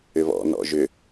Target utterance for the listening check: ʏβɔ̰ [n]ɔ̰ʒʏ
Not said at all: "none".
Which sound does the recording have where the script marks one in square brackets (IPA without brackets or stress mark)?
n